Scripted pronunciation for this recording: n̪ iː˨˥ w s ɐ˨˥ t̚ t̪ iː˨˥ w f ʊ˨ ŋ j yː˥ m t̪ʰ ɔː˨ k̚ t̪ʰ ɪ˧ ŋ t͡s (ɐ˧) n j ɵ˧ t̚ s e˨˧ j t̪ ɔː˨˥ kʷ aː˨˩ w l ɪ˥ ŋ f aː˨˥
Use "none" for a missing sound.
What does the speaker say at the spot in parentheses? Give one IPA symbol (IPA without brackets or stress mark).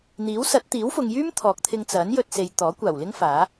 ɐ˨˥